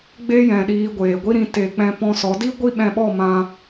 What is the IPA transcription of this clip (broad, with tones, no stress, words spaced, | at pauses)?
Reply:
ɡ͡be˦jɛ̃˨ ɗiː˧ɡʷeː˨ɡʷi˦ɾĩ˧ te˨k͡pɛ̃˧pɔ̃˧ sɔ˨˦di˦ ɡʷi˦ɓɛ̃˧ɓɔ˦˨mã˧